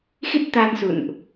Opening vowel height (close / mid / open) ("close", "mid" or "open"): close